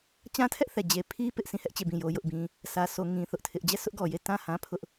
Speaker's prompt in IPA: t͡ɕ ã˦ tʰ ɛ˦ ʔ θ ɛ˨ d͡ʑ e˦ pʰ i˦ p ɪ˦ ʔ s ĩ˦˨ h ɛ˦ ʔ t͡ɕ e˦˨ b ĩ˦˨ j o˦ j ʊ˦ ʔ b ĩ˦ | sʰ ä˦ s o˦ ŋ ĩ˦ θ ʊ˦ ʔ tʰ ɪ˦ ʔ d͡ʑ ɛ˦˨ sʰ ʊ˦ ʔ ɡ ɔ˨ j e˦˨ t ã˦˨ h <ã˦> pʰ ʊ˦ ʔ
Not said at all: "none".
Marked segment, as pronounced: ã˦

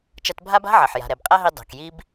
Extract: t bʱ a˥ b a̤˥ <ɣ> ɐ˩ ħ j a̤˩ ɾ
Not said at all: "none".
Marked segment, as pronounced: ʕ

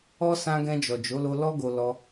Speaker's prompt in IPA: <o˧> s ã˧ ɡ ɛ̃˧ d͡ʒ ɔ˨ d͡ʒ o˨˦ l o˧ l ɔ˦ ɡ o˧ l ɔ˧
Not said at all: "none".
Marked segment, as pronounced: ɔ˧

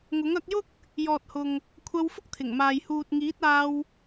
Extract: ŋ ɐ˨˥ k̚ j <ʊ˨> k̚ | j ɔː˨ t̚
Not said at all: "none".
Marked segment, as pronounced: ʊ˥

